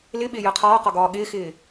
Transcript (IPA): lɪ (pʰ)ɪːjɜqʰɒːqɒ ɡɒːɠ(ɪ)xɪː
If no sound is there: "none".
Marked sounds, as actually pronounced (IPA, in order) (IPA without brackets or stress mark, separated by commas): ɓ, ɪː